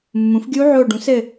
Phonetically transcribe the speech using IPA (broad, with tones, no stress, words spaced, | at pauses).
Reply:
mːũ˩˥fɡʲu˦˥ʕo˦˨ ɖũ˩˥sɘ˦˨